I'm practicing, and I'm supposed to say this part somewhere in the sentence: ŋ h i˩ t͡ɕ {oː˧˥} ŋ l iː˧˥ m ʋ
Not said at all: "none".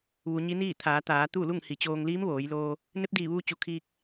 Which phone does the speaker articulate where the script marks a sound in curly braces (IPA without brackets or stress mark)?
oː˧